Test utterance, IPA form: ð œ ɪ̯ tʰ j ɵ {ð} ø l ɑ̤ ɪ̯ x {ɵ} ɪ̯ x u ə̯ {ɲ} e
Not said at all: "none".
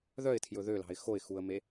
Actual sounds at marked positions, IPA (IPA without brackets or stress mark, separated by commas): ð, o, m